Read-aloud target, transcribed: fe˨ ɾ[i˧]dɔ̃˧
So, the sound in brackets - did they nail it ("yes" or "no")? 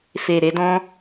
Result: no